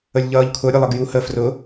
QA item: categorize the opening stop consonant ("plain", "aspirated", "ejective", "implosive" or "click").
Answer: aspirated